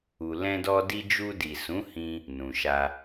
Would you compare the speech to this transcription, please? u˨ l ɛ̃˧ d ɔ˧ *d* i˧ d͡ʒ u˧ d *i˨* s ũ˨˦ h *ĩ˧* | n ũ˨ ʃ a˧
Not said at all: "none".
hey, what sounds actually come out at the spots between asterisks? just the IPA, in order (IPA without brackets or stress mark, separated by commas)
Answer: d, i˨, ĩ˧